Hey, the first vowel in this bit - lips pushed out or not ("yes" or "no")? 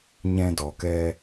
no